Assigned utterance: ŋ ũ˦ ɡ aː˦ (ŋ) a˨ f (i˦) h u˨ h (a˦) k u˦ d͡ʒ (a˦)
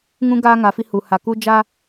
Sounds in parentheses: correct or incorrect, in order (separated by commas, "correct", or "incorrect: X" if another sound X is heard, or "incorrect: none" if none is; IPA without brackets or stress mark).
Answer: correct, correct, incorrect: a˨, correct